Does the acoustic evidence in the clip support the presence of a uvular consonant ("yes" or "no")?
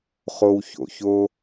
yes